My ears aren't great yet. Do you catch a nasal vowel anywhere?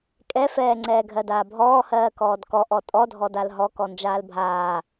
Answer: no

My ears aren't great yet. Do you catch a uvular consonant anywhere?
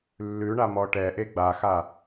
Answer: no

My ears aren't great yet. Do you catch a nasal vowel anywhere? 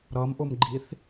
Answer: no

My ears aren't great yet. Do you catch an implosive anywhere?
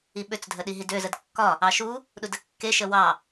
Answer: yes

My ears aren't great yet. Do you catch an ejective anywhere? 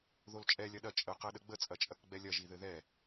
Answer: yes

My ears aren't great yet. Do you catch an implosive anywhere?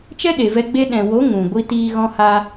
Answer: yes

